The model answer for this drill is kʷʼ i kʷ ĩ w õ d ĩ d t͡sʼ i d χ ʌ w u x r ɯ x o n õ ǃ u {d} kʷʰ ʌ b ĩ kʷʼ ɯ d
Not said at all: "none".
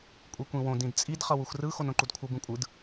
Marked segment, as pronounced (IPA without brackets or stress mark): d